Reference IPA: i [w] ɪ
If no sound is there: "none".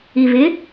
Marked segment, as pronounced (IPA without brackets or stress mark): v